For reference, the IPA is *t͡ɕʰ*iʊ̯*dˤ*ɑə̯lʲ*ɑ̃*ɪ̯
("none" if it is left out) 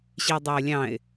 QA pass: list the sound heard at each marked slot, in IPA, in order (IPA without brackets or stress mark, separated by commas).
ɕ, dˤ, ɑ̃